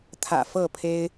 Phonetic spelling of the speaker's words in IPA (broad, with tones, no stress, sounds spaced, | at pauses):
t̪ʰ ä̰˨˩ f ɤ˥˨ pʰ e˦ ɪ̯